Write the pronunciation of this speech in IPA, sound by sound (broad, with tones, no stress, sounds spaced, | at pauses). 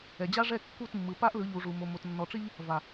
ɛ˨ d͡ʑ a˦ ʐ ɛ˦˨ kː u˦˨ t mː ɯ˨ p a˦ ʔ l ɯ˨˦ ʎ u˨ ʐ u˨ m o˨ m o˨ t nː ɔ˨ ʈ͡ʂ i˦ ʎ | v a˨